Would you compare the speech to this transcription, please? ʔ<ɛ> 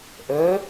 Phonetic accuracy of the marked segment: incorrect: œ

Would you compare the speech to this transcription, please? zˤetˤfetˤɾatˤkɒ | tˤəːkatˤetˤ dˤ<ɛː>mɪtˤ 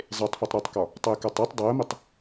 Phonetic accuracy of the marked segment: incorrect: əː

